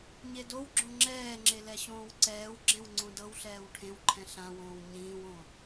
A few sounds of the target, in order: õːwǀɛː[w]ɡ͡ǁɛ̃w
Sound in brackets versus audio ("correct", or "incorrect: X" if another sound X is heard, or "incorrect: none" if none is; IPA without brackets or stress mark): correct